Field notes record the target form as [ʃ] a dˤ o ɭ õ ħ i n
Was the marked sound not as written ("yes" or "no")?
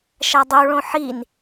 no